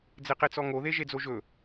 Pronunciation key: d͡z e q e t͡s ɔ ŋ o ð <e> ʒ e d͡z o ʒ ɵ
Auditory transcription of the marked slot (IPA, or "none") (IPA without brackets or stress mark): e